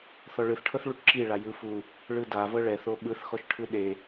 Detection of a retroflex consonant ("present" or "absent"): present